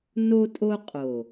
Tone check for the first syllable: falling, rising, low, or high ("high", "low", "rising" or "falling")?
high